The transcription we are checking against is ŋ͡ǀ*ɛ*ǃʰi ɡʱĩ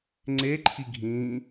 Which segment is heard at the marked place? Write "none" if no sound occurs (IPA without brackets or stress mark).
e